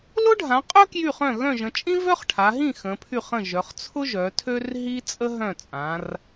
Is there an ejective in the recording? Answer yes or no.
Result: yes